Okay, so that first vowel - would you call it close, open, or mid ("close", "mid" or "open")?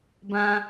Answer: open